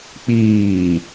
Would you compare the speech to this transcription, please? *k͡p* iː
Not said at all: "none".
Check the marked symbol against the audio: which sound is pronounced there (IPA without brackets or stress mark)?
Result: k͡p